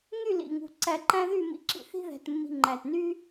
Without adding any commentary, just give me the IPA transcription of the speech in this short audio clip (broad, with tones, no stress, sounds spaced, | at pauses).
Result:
ŋ y˥˧ l ḭ˧˩ ŋ ṳ˧˩ ǀ æ˧ ǃ æ̃˥ ð y˥˧ m ḭ˧ ǁ ḭ˧˩ θ i̤˥ ð æ̤˧ t mː i̤˧ ŋ͡ǃ æ˧˩ t n y˥